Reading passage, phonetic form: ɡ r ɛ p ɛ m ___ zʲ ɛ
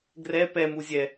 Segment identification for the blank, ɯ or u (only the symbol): u